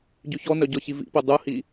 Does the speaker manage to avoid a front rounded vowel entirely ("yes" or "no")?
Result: no